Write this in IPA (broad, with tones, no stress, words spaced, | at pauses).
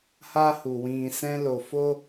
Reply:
ha˦hu˨ wĩ˨ sɛ̃˦lo˧ fo˦